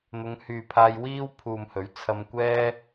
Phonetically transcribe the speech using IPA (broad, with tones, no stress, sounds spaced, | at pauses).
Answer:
n̪ ʊ˨˧ ŋ h yː˨ pʰ aː˧ j w iː˥ w pʰ uː˨ m h ɵ˨˥ ɥ t͡sʰ ɐ˧ m kʷ ɛː˥